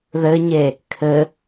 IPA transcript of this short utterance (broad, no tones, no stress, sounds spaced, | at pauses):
ð ɘ ɲ e | kʰ ɘ